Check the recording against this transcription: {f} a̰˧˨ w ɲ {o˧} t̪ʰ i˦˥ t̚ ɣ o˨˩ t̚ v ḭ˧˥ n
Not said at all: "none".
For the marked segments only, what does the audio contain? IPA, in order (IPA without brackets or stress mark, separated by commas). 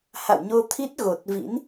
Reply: h, o˧